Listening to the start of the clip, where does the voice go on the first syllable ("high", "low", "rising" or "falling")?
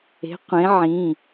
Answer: rising